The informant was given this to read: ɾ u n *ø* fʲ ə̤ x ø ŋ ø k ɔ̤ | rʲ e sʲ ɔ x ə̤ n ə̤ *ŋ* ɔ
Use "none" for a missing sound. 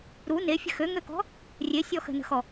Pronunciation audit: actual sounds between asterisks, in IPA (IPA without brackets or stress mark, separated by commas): e, x